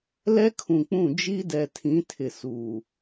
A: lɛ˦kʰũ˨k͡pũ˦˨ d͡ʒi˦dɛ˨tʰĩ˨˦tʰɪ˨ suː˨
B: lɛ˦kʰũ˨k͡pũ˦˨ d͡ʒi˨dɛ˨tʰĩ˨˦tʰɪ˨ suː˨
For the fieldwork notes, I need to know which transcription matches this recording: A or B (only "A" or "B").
A